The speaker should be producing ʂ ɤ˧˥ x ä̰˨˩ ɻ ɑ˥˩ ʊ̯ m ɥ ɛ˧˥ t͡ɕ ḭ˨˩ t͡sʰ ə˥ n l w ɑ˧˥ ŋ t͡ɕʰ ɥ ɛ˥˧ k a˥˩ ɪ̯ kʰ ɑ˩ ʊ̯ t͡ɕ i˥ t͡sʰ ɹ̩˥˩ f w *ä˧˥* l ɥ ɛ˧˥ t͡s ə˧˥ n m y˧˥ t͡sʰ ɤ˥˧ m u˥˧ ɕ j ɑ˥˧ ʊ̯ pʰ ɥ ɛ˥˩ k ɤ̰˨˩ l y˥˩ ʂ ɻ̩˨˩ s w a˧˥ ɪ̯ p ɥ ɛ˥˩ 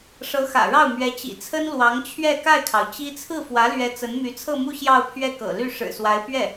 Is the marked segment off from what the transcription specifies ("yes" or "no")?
no